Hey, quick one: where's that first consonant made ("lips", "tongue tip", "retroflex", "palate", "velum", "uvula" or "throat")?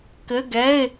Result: velum